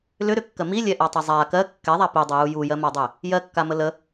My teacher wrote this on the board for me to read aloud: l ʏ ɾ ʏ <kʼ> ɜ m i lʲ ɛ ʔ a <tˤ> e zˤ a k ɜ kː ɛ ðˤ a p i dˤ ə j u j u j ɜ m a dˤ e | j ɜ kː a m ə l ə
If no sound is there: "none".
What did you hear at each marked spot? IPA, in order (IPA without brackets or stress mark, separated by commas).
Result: kː, tˤ